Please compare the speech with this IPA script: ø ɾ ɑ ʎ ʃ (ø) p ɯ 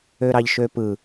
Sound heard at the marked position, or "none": ø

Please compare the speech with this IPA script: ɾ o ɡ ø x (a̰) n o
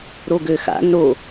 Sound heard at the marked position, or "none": a̰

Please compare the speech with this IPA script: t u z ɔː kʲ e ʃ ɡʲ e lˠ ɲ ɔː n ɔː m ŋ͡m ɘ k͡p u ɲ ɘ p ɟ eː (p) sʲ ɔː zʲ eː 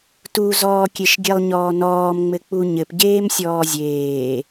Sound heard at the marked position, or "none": m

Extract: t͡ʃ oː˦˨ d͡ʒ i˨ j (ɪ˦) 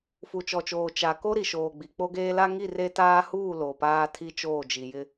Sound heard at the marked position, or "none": ɪ˦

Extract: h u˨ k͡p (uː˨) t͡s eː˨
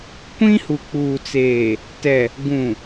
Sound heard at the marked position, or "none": uː˨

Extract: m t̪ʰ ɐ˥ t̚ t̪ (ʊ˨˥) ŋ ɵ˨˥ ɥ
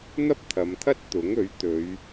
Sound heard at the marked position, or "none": ʊ˨˥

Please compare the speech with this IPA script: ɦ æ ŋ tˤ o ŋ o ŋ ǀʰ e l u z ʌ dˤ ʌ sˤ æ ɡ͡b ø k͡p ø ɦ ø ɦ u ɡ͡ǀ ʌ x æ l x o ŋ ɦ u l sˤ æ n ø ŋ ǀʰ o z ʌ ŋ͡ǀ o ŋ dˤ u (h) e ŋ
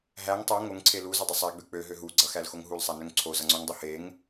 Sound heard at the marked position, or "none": h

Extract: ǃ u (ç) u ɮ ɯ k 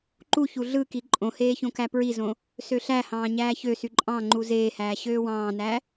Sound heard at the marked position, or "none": ç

